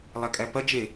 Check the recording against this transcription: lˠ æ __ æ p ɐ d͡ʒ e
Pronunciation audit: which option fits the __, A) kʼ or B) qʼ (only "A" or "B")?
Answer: A